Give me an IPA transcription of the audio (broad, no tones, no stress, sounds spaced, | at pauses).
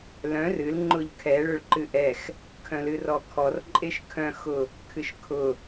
l œ̃ r ɨ l ŋ͡ǃ ʊ ʎ kʰ ɛ ɭ ʊ ɭ ǃ ɨ ʔ ɛ x | kʰ œ̃ l ɨ r ɔ kʰ ɔ r ǃʼ e ʃ kʰ œ̃ x ʊ | kʰ ɨ ʃ kʰ ʊ